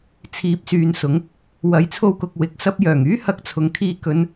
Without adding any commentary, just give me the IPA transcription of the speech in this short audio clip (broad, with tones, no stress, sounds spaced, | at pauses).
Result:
t͡sʰ iː˨˥ p̚ s yː˨ n s ʊ˨˥ ŋ | w ɐ˨˥ j t͡sʰ o˧ w k ʊ˨ k̚ w ɪ˨˥ k̚ s ɐ˥ p̚ j œː˨˩ ŋ yː˥ h ɐ˧ k̚ t͡sʰ ʊ˨ ŋ kʰ iː˧ k ɵ˥ n